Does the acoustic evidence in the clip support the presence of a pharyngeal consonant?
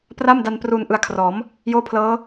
no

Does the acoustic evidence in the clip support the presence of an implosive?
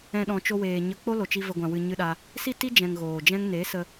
yes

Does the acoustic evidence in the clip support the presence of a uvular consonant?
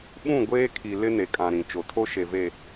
no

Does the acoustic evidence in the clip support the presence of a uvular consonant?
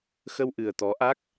no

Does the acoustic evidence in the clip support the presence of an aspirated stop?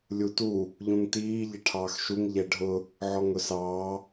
yes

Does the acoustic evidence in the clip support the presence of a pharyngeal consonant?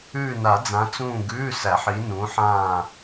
yes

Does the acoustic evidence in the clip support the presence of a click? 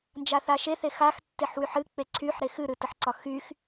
yes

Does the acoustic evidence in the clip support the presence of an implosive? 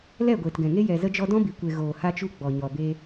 no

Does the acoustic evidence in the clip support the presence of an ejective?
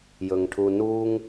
no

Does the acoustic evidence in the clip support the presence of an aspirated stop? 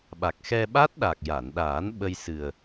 no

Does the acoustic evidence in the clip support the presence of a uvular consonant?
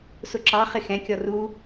yes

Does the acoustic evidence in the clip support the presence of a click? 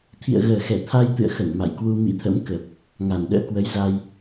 no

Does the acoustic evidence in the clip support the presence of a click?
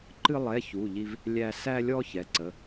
yes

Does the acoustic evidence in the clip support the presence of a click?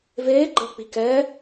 yes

